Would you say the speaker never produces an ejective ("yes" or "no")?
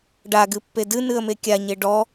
yes